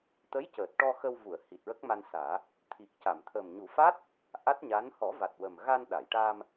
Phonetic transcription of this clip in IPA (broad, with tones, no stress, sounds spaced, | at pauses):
t̪ ə˧˥ j c əː˨˩ t̚ ʈ ɔ˧ x ə˧ w v u˨˩˨ ə̯ h i˨˩ t̚ ɹ ə˦˥ k̚ m a˧ n s aː˨˩˦ | t̪ʰ i˨˩ k̚ c a˨˩˨ m t̪ʰ ə˨˩ m ɲ u˨˩˦ f a˦˥ t̚ | ʔ a˦˥ t̚ ɲ a˧˥ n h ɔ˨˩˦ v a˨˩ t̚ w ə˨˩ m ɣ a˧ n ɗ a˨˩˨ j ʈ a˧ m